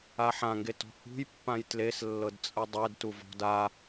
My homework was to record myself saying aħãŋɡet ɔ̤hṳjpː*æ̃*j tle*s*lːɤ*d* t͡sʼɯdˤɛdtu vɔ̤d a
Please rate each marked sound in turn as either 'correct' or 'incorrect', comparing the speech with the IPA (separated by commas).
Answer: incorrect, correct, correct